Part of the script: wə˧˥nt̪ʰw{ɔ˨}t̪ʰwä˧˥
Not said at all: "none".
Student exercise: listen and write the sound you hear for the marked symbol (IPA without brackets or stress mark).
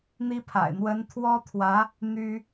ɔ˥